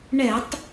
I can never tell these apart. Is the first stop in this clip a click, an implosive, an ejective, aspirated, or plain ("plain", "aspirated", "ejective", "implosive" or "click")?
plain